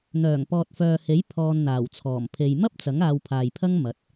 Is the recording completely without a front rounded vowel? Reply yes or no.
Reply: no